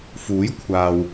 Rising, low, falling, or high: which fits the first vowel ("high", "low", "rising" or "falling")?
rising